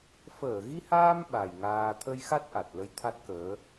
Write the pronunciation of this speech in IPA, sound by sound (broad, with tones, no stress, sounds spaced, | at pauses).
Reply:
f əː˧˩ ɣ i˧ h aː˧ m ɓ a˨˩ j ŋ aː˧ t̪ʰ ə˧ j x a˦˥ t̚ ʔ a˨˩ t̚ l ə˧ j t̪ʰ a˦˥ t̚ k əː˨˦